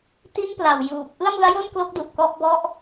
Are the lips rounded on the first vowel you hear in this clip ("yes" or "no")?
no